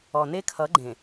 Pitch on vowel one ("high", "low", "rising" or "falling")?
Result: low